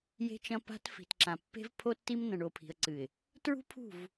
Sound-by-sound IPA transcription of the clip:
j e̤˦ t͡ʃ ɐ̃˦ p a̤˦ t f i̤˨ t ǁ ã˨ pː e̤˦ v pʰ o˦ tː i˦ m n ɐ̃˨ ɳ o˨ pʰ i̤˨ ə̯ ǀ ɨ˨ ɪ̯ | t ɹ ṳ˦ pʰ ṳ˦˨ v

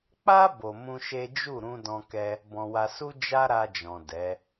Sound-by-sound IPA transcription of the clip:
k͡p a˦ b o˧ m ũ˦ ʃ e˦ d͡ʒ u˦˨ ɾ ũ˧ d ɔ̃˧ k ɛ˧ | b ɔ̃˧ w a˧ s u˦ d͡ʒ a˦ ɾ a˧ d͡ʒ ɔ̃˨ d ɛ˨˦

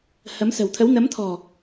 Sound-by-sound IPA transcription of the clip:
h ə˨˦ m s ə̤˨˩ w t̪ʰ ə˨˦ w n ə˨˦ m t̪ʰ ɔ̤˨˩

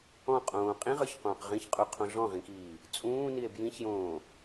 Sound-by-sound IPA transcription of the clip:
ɔ̃ qʼ õː qʼ ĩ ʁ ə˞ ç q õː q ʁ ĩ ç qʼ u qʰ õ ɮ ɔ̃ ʁ ĩ k iː | t͡sʼ ũː n i e̯ b j ĩ ç j õː

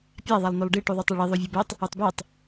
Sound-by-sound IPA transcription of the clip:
pʲ a ðˤ a lˠ n o lˠ ɖ i ʈ u ðˤ y tˤ ɛ ɭ i ðˤ o vʲ o b ɛ tˤ | u tˤ b ɛ tˤ

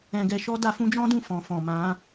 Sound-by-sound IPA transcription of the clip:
ɛ̃˧ ɡ ɛ˧ ʃ ɔ˦ d a˧ f ũ˦ d͡ʒ ɔ̃˦ d ũ˦˨ f ɔ̃˨ f ɔ̃˨ m ã˨˦

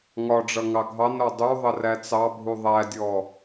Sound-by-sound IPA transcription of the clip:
ŋ ɒ ɖ͡ʐ ʌ ŋ ɑ ɡʱ ɑ n ɾ ɔ dˤ u ðˤ ə r æ t͡s ɑ bʱ u ðˤ æ dʲ ɔ

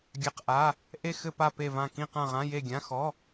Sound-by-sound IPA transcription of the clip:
ɡʲ a˧˥˧ q ʔ a˧˥˧ | ʔ e˦˨ x ɘ˦˨ p a˦˨ p e˦˨ v ã˦˨ k ĩ˦˨ q ã˦˨ ʁ ã˧˥˧ j e˦˨ ɡʲ ã˧˥˧ x ɔ˧˥˧

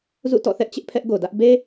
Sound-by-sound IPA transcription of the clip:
z ṵ˦˨ t ɔ̰˦˨ θ ɛ˦ ʔ t͡ɕ ɪ˦ ʔ pʰ ɛ˦ ʔ ɡ o˨ d ä˦ ʔ b e˦

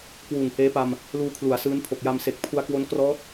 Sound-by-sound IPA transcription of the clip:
k w uː˨˩ ŋ h eː˦˥ p a˧ m | l uː˧ kʰ l u˩˦ a̯ s ɯː˦˥ n pʰ o˨˩ k̚ j a˧ m s e˨˩ k̚ pʰ u˧ a̯ k w o˦˥ n k r ɔː˦˥ t̚

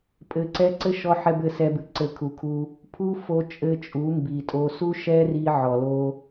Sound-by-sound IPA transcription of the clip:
pʼ ɘ˨ ǀ ɛ˧ ǀ ɘ˦ ʃ ɔ˧ ħ ɛ˧ b ɘ˧ s ɛ˧ b ɨ˨ ǀ ɘ˨ kʰ u˨ kʰ u˧ | pʰ u˦ f o˧ t͡ʃʼ ɘ˧ t͡ʃʼ u˨˦ m b i˨ tʼ o˧ s u˦ ʃ ɛ˦ r i˧ ʕ ɔ˨ l o˦

